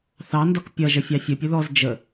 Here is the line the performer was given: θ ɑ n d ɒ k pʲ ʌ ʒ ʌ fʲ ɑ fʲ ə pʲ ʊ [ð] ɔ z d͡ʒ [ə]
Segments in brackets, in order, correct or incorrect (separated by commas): correct, correct